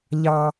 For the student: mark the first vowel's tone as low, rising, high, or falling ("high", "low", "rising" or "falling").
high